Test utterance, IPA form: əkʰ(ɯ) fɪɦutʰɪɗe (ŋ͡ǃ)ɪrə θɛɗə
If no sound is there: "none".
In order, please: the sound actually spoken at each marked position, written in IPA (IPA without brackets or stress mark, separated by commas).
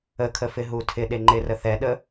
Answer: ə, ŋ͡ǃ